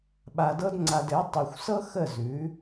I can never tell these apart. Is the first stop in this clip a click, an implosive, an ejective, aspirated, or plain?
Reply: implosive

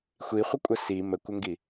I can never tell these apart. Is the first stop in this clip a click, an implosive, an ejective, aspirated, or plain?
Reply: ejective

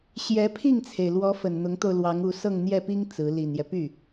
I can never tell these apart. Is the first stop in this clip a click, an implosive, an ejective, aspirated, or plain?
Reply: aspirated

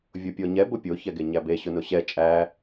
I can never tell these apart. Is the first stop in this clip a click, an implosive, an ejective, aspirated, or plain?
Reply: plain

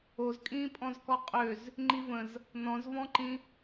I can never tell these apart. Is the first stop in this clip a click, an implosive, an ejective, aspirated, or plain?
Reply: ejective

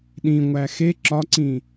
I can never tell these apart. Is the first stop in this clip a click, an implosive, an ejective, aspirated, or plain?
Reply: implosive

